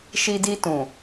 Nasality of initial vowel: oral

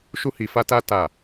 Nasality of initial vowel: oral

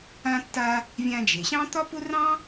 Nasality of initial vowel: nasal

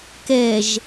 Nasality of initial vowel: oral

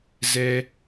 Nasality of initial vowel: oral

